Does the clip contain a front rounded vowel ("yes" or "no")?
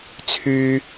yes